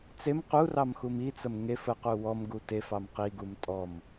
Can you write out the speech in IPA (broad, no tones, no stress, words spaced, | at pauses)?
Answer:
t͡sem qurɑmxum it͡səm ŋef əqu wɔmɡu tefɑm qiɡum tʼɔm